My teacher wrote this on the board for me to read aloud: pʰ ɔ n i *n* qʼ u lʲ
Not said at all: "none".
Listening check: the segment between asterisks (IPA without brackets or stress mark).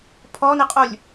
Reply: none